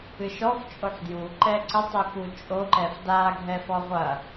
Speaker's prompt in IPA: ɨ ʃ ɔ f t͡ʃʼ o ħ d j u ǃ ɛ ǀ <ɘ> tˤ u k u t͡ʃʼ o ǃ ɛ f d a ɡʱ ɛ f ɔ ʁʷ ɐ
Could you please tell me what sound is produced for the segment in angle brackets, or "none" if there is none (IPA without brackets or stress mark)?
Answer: ɘ